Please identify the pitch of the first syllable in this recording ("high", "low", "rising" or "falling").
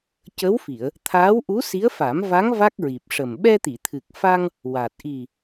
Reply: rising